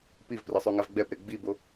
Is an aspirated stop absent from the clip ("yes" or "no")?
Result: yes